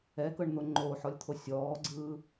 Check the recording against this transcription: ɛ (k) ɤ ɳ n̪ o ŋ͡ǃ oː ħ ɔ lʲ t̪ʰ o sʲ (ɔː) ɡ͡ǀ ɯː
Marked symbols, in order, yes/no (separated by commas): yes, yes